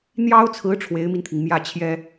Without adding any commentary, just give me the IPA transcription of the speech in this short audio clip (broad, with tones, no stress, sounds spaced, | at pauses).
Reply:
n̪ j ɑ˥ ʊ̯ t͡sʰ ɹ̩˧˥ ʈ͡ʂʰ w e˧˥ ɪ̯ m i˧ n t̪ʰ i˩ ŋ m j ä˥˩ t͡ɕʰ j ɛ˥